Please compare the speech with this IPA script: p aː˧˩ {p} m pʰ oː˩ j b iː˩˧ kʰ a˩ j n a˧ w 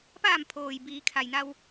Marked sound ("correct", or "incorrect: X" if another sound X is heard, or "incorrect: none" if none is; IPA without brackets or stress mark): incorrect: none